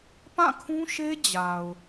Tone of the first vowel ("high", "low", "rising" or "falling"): falling